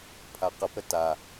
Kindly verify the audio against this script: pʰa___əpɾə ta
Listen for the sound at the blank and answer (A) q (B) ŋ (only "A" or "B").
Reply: A